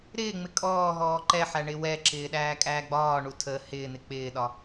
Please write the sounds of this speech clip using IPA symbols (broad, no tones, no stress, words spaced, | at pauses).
ɾɪːŋ͡mɪ kʼɔːɦɔː ǃɛħæ ɳɪwɛǁɪː ɗæːkʼæːɡ͡bɒːɳu tʰə hɪːn̪ɪ k͡pɪːɗɒ